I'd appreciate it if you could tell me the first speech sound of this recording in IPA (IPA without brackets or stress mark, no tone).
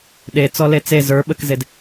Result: ɗ